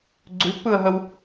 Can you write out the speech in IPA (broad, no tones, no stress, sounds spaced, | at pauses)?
ɡ͡ǀ ʉ pː ɯ ə̯ ɦ ə w